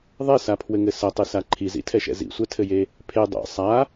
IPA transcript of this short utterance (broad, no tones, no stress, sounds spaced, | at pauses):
ðˤ ɛ s a pʰ w ɘ ŋ ɘ s ɐ tˤ ɨ s a ǃʰ i z ḭ tʰ ɛ ʃ ɛ̰ z ḭ sʷ ɛ tʰ ɘ j e | pʰ e dˤ ɛ̰ sˤ a